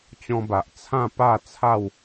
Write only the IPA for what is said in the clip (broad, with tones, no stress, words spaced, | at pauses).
t͡ɕɔ̃˧ba˨ʔ t͡sʰã˥˧pa˥˧t͡sʰa˥˧w